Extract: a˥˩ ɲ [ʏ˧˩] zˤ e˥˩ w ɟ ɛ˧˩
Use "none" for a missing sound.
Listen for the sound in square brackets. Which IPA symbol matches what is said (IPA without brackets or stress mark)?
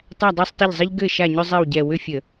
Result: ʏ˥